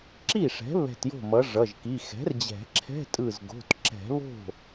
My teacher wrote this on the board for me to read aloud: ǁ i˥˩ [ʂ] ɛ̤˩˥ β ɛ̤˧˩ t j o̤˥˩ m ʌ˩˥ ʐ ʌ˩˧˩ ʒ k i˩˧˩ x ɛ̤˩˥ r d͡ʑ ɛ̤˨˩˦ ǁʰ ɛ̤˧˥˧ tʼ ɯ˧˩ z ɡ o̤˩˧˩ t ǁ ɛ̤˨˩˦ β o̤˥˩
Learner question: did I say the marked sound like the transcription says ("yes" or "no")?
yes